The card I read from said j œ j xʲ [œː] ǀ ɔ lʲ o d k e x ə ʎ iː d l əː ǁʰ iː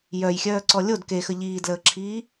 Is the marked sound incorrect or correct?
correct